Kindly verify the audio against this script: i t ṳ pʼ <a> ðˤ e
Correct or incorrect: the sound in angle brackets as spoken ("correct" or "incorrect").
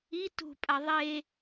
correct